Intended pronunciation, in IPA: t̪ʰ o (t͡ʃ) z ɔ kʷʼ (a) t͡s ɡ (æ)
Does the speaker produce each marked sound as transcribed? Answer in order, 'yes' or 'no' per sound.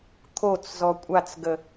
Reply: no, yes, no

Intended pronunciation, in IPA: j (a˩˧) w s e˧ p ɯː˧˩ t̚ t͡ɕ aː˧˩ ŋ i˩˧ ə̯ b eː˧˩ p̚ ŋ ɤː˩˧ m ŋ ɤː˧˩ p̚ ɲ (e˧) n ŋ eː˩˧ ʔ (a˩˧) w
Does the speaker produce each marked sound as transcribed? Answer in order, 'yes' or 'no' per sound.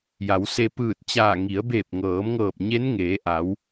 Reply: yes, no, yes

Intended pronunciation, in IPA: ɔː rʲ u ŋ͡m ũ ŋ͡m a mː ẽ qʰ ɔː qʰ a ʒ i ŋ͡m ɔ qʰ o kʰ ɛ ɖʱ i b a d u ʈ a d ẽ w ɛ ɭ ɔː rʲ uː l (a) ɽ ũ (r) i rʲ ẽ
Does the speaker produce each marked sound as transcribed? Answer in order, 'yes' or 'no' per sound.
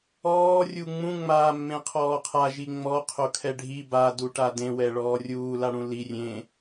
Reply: yes, no

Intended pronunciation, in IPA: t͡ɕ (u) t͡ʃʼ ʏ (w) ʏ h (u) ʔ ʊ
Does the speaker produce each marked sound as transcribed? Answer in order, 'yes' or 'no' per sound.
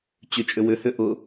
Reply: no, yes, no

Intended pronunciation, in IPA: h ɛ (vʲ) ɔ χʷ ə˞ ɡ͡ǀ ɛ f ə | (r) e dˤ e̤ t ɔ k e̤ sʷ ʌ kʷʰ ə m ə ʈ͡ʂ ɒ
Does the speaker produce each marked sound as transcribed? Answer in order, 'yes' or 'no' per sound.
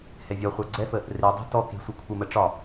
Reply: yes, yes

